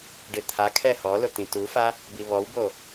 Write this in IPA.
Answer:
ɖ ɪ t̪ʰ a kʰ ɛ h ɔ l ʊ t̪ ĩ t u f a | b i β ɔ w b o

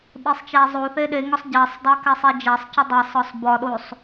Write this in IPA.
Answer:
ɓ e sˤ t͡ʃ æ zˤ o θ e ɗ e ŋ ɒ sˤ ɟ æ sˤ dˤ æ k æ sˤ e d͡ʒ æ sˤ c u dˤ e sˤ ɒ sˤ b ɒ ɗ o sˤ

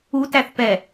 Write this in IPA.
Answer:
u t æ θ p ɛ

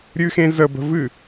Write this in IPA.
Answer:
ɾʲ ɨ x ẽ z ə b ə̤ v ɨ

